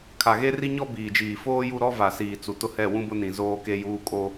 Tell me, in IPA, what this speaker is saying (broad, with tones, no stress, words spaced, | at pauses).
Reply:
kʰa˨ɣe˦ri˦ ɲɔ˦ biː˨d͡ʒiː˨ foː˦ju˦˨ ɾɔ˦va˨siː˨ t͡su˨tʊ˦hɛ˦˨ wũ˦bʊ˦ nĩ˨ zoː˦ke˦juː˦ kʼo˦